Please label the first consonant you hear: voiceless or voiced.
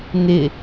voiced